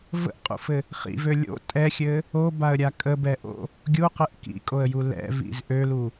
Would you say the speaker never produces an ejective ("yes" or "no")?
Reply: no